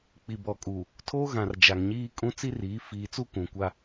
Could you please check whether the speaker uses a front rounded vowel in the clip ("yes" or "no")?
no